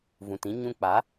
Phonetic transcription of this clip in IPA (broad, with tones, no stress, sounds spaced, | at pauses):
v ũ˨ t ĩ˦ ɲ ũ˧ k͡p a˨˦